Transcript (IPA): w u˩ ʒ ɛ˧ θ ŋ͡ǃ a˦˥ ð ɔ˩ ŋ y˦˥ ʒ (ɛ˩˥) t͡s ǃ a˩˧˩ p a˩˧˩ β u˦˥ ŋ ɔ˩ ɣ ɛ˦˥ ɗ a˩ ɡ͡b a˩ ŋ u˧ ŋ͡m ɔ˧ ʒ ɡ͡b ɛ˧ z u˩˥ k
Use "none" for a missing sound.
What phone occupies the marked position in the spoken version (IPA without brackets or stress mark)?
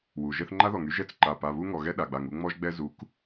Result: ɛ˩˥